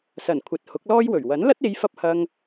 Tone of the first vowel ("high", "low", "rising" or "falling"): low